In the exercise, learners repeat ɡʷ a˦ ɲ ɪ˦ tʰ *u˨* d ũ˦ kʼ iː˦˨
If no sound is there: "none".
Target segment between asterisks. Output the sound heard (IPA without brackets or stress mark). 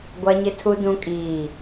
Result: u˦